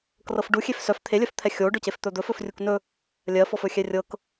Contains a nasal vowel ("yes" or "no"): no